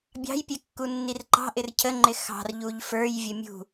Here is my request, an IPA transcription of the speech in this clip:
bʲ ɑ̤ j pʲ ɛ kː u nː i r ǃ ɑ̤ ʔ ɪ r cʰ ə ŋ͡ǃ ɪ x ɑ̤ r ʎ u ʎ f ə˞ j vʲ ə mʲ ṳ

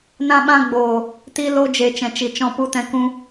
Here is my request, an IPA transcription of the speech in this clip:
n ã˧ ɓ ã˧ ɡ͡b oː˨ | t i˧ l o˧ d͡ʒ e˨ t͡ʃ ɛ̃˨ t͡ʃ i˨ t͡ʃ ɔ̃˧ p u˧ t ɛ̃˧ k ũ˧

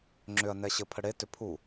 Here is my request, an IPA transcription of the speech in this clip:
ŋ͡ǁ ʏ ɐ̯ n ɛ ɕ ɘ pʰ ə ɽ e t ʏ pʰ u

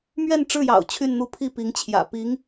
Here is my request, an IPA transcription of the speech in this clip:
m ɥ ɛ˥˧ n ʈ͡ʂ ɻ̩˥˩ j ɑ̰˨˩ ʊ̯ t͡ɕʰ y˥˧ n n̪ u˥˧ pʰ i˥˩ p i˧˥ ŋ t͡ɕʰ j ä̰˨˩ p i˧˥ ŋ

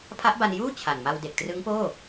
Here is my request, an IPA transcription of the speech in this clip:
pʰ a˦˥ ʔ b a˧ n j uː˥˩ t͡ɕʰ a˨˩ n m a˧ w d e˨˩ k̚ t r ɯ˦˥ ŋ p oː˥˩

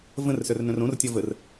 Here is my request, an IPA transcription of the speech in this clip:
v ə̃ r s œ r n œ̃ r õ r tʲ ɔ v ə r

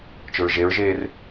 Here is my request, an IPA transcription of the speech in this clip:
t͡ʃ ʊ ɹ ʒ e ɹ ʒ eː r

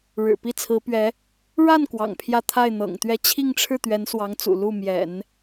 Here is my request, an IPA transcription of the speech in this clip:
ɻ ɻ̩˨˩ p i˥˩ t͡sʰ ɹ̩˧˥ p ɥ ɛ˧˥ | ɻ a˥˩ n k w ɑ̰˨˩ ŋ pʰ j ä˥˧ t̪ʰ a˥˩ ɪ̯ n̪ ɤ̰˨˩ ŋ t̪ ɥ ɛ˥˧ t͡ɕʰ i˥˧ ŋ ʈ͡ʂʰ ɻ̩˥˩ t̪ ɥ ɛ˧˥ n s w ɑ˧˥ ŋ t͡s ṵ˨˩ l u˥˩ m j ɛ̰˨˩˦ n

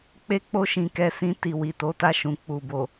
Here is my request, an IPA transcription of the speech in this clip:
k͡p e˦ k͡p o˦ ʃ ĩ˧ k ɛ˧ s ĩ˧ t i˨ w i˨ t o˨˦ t a˧ ʃ ũ˨ k͡p u˨ b o˨

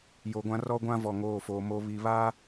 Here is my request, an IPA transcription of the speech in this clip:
j o˨ ɡʷ ã˦ r ɔ˦ ɡʷ ã˦ v ɔ˨ ŋ oː˦˨ f oː˨ m o˨ β i˨ β a˦

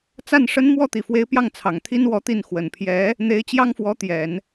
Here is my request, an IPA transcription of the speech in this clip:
t͡s a˥˩ n ʂ ə˥ n m w ɔ˥˩ t̪ i˨˩ f w e˧˥ ɪ̯ p j ɑ˥˩ ŋ t͡sʰ ɑ˨˩ ŋ t̪ʰ i˥ n w ɔ˧˥ t̪ i˥˩ n x w ə˨˩ n pʰ j ɛ˧˥ | n̪ e˧˥ ɪ̯ t͡ɕ j ɑ˥ ŋ f w ɔ˧˥ t̪ j ɛ˨˩˦ n

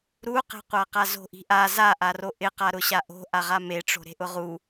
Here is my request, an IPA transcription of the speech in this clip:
ɾ u q e̤ qʷ a q a z o̤ ʔ i̤ ʔ a z a ʔ a r o ʔ ɪ q a ɾ ʊ ɕ a ʔ o̤ ʔ a ʁ a m e ʈ͡ʂ o̤ ɾ e̤ ʔ ʊ ʁ u

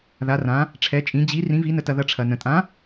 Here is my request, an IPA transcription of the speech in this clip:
ð a˧˥ r ã˧˥ | ʈ͡ʂʰ ɛ˧˥ t͡ʃʼ ĩ˧˥ d͡ʑ i˧˥ r ĩ˧˥ v i˧˥ n ə˧ t ɐ˧ ð ɐ˧ ʈ͡ʂʰ ɐ˧ n ə̃˧ tʼ ã˧˥

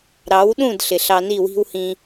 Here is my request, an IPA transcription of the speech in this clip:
ɾ ɑ˨˦ w ɗ ũ˦˨ d ɬ ɪ˨ ɬ ɑ˧ n i˦˨ w i̤˦ w h ĩ˧

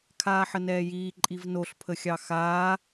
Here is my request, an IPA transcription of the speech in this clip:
kʰ aː ħ ə n ɛː j iː ǃʼ i v n o ɬ pʰ ə xʲ ɑ x aː

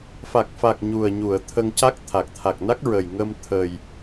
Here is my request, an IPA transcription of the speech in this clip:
f a˨˩ k̚ f a˨˩ k̚ ɲ u˨˩ ə̯ ɲ u˨˩˨ ə̯ t̪ʰ ə˧ ŋ c a˦˥ k̚ t̪ʰ a˨˩ k̚ t̪ʰ a˨˩ k̚ n a˦˥ k̚ ɹ ə˨˩ j ŋ ə˧ m t̪ʰ ə˨˩ j

